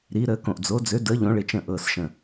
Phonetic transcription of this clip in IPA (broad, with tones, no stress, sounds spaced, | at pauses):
ɾ i˨˦ ɾ əː˨˦ k õ˧˩ ʔ d͡z o˨˦ d͡z ø˨˦ d əː˨˦ ʎ õ˨˦ ɭ ɪ˧˩ t͡ʃ ə̃˧˩ ʔ ɤː˧˩ s ʃ ə̃˧˩